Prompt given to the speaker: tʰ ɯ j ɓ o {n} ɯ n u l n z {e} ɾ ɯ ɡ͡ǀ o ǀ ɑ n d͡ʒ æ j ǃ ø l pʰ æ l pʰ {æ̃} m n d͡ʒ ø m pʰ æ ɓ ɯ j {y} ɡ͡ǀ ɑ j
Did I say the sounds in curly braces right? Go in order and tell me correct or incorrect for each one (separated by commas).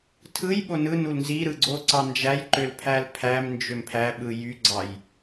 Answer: correct, incorrect, incorrect, correct